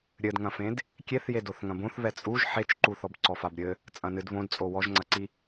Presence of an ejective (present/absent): present